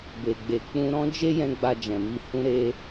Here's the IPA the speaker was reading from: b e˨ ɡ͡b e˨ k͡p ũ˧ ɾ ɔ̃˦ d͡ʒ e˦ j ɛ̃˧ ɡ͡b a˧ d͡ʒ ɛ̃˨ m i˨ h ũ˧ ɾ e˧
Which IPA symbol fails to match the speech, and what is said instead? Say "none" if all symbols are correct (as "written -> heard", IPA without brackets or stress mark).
none